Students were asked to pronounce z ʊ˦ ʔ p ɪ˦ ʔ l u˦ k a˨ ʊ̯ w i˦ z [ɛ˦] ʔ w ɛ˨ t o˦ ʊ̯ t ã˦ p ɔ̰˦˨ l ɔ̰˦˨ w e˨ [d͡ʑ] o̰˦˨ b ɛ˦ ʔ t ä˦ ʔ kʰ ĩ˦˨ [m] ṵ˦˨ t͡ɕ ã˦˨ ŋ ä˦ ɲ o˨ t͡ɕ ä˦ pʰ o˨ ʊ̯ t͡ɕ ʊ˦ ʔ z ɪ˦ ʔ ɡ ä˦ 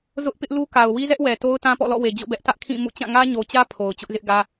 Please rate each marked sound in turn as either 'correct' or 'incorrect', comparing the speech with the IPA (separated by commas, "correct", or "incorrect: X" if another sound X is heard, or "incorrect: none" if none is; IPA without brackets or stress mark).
correct, correct, correct